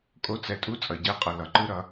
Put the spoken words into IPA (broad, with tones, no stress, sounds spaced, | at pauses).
kʼ o˧ t͡s ɛ˨ tʼ u˧ t͡sʼ ʌ˨ ɟ ɛ˨˦ qʼ ʌ˨ l ʌ˨ ǃ ɯ˦ ɾ ʌ˧